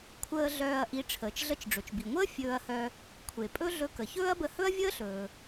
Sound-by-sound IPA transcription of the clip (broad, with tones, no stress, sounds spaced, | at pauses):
kʷʰ əː˧ ɮ œː˧ ɐ̯ ʔ i˧ ʈ͡ʂʰ əː˩ t͡ʃ ɮ ə˧ t͡ʃ ɖ͡ʐ ɵ˩ t͡ʃ b i˩ ŋʷ əː˥ fʲ ɵː˧ ɐ̯ h œ˧ | kʷʰ e˩ pʼ ɵ˥ ɮ ɵ˧ k ə˩ ç ɵː˥ ɐ̯ b ə˧ h ɵ˥ ɐ̯ vʲ əː˥ ɬ ɵː˩